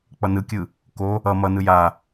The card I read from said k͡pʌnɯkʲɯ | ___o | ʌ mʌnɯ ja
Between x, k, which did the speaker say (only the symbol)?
k